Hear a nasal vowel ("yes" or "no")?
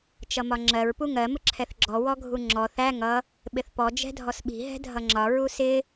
no